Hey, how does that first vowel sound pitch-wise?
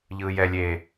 high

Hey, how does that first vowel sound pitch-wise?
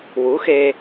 rising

